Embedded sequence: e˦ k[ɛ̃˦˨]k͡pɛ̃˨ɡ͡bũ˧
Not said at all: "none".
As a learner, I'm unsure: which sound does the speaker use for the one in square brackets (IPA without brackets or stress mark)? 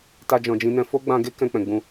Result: ɛ̃˧